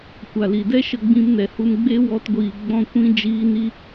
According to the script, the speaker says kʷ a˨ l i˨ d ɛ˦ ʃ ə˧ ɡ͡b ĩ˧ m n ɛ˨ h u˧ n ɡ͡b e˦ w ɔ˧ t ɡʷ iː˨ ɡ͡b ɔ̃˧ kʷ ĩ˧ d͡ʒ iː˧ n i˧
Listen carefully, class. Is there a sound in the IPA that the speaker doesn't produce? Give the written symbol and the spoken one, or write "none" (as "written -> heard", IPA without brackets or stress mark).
none